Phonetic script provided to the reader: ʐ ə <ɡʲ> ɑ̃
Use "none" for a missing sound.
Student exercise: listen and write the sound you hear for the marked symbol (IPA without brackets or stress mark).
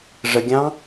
ɡʲ